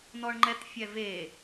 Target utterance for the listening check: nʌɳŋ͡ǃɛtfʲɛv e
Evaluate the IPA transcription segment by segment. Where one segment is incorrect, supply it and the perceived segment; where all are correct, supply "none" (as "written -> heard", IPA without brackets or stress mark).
ʌ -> ɔ